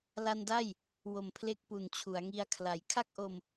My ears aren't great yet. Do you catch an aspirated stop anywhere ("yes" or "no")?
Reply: yes